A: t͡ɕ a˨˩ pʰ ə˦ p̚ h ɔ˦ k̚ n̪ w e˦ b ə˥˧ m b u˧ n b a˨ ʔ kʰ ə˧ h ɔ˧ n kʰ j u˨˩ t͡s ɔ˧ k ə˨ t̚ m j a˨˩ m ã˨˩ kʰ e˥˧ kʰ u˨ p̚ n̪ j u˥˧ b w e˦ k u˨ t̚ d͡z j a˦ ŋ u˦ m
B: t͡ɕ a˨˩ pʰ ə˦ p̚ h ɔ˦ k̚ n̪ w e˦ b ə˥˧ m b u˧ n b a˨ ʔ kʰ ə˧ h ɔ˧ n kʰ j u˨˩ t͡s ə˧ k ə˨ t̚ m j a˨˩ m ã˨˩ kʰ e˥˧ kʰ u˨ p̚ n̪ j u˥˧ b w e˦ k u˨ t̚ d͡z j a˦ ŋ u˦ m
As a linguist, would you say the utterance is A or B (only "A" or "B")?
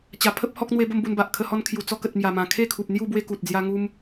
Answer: A